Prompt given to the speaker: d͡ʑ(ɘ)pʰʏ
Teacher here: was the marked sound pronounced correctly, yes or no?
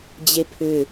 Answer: no